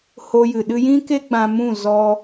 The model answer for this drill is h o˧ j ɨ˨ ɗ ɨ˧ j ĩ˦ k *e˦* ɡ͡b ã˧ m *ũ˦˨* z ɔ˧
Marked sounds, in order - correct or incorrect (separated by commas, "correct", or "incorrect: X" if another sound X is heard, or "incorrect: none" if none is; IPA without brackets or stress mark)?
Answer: correct, correct